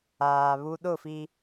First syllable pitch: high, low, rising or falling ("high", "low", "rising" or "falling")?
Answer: low